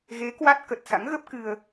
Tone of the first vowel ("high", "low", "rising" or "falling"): rising